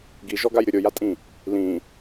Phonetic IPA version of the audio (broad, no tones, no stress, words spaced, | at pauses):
ɡiʒɔɡaj ɾʲʊɾʲojatʼĩ | lĩ